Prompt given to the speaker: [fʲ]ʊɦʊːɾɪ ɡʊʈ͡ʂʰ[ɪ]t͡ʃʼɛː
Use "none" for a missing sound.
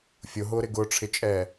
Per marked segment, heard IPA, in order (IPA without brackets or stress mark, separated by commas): fʲ, ɪ